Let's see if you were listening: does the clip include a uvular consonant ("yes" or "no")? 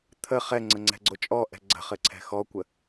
yes